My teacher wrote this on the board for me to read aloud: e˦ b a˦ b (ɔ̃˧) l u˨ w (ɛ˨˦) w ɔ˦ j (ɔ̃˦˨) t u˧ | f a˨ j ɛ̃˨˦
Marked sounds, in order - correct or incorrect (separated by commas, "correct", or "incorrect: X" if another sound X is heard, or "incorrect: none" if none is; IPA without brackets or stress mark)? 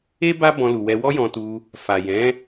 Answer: correct, incorrect: ɛ˧, incorrect: ɔ̃˧